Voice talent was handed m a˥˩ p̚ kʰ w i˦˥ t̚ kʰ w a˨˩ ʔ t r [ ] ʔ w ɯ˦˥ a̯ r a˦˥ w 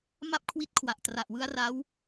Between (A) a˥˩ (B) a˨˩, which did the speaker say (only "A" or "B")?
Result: B